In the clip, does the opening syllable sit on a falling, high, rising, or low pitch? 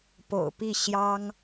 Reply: low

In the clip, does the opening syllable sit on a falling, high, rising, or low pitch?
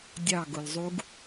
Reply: falling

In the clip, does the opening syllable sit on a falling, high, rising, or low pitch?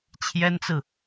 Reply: high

